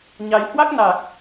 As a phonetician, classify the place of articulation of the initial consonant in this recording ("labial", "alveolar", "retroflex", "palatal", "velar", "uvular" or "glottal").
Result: palatal